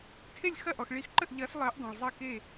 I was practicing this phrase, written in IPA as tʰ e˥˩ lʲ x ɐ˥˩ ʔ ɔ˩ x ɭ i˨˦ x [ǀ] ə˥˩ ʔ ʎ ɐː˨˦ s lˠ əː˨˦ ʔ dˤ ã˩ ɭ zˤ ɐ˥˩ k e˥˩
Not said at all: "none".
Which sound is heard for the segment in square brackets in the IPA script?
ǃ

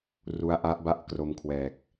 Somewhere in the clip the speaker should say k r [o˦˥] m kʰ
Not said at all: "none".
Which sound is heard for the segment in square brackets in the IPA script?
o˧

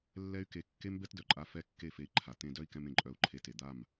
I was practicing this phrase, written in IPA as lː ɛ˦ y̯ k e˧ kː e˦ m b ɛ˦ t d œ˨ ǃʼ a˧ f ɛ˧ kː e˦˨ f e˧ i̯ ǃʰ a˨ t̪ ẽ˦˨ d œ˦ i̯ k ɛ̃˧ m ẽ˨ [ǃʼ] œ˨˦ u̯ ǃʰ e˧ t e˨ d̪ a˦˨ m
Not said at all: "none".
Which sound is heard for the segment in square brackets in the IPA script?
ǃʼ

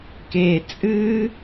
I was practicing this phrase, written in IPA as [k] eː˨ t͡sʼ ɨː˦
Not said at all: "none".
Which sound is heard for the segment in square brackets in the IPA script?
k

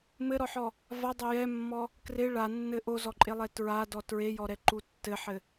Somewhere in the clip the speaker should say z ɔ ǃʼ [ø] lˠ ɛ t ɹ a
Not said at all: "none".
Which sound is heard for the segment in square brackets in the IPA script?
e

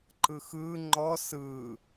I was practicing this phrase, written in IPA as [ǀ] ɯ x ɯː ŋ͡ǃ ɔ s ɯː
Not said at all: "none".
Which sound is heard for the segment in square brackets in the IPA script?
ǃ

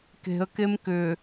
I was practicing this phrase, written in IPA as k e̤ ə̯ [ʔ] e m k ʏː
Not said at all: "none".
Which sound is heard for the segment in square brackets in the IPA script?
k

